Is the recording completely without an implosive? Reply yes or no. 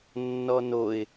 yes